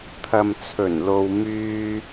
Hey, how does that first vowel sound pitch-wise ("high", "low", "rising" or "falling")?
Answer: low